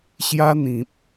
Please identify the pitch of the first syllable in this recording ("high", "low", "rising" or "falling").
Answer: high